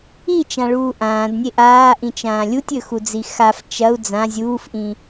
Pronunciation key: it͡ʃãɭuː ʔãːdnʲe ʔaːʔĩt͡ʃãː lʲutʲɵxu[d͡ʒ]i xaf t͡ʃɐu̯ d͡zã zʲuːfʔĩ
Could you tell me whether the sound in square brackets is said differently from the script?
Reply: yes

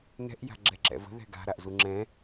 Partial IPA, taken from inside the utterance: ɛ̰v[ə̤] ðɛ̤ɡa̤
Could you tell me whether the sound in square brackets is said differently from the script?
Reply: no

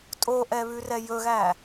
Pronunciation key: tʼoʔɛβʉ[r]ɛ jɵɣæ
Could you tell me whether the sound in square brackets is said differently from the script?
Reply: no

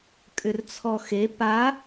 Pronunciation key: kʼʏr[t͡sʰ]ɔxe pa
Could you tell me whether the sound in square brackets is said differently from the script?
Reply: no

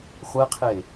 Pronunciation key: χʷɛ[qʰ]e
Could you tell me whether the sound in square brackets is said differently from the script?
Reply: no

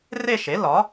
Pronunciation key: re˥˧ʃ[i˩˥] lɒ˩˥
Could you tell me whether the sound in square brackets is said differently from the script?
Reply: yes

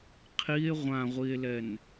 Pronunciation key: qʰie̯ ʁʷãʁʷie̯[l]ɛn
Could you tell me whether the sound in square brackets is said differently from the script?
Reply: no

